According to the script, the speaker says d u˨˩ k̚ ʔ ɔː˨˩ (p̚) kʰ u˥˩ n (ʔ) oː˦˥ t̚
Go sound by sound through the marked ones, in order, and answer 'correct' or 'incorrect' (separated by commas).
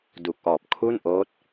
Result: correct, correct